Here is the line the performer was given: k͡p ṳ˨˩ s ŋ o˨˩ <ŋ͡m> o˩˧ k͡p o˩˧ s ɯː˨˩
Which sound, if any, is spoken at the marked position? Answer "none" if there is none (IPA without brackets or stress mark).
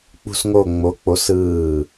ŋ͡m